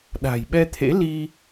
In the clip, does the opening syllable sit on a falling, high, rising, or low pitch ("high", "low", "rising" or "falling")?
low